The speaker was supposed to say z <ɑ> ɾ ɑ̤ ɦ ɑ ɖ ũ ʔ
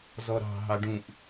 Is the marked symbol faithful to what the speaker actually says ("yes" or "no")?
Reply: no